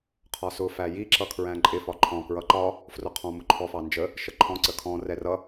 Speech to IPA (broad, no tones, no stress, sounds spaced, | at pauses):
qʰ ɒ s ʊ f æ j i ǁ ʌ kʰ ɹ æ̃ ǃʼ ɪ f ɒ ǃʰ ɔ̃ k ɹ ʌ ǃ ɒ | f r ʊ qʰ ɔ̃ m ʊ ǃʰ ɔ f ɑ n d͡ʒ ə | ʃ ə ǃʰ ɔ̃ ǀ ə kʰ ɔ̃ r ɛ r ʌ